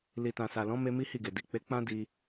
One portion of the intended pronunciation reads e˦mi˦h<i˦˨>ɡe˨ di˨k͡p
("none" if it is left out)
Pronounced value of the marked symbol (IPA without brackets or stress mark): i˦˨